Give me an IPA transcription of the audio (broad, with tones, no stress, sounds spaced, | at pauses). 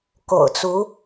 k o̰˨˩ ʊ̯ t͡s u˧˥